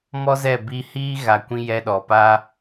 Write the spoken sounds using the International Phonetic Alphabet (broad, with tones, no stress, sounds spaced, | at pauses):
m ɔ˦ z ɛ˦˨ b i˧ h iː˦ ɣ a˨ kʷ ĩ˧ j ɛ˧ ɗ ɔ˨ p a˦